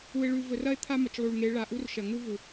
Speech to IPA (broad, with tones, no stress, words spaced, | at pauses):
u˨e̯ ɭʉ˨vɵ˨rɐ˦e̯ t̪ʰa˦mɐ˨t͡ʃlˠu˨ɭŋe˨˦ ɭa˨ʔu˦r ʃɐ˨ŋu˦ vu˨